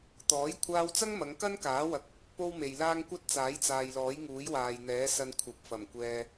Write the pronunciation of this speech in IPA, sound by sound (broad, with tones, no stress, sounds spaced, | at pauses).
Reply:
t̪ ɔː˨˥ j kʷʰ aː˧ w t͡s ɐ˥ ŋ m ɐ˨˧ ŋ k ɐ˥ n k aː˨˥ w ɐ˨ k̚ | p o˥ w m e˨ j l aː˥ ŋ kʷ ɐ˥ t̚ t͡s aː˨˥ j t͡s aː˨ j l ɔː˨˥ j ŋ uː˨˥ j w aː˨ j n̪ ɛː˨˥ s ɐ˧ n kʷʰ ɐ˨˥ p̚ f ɐ˨˩ m kʷ ɛː˧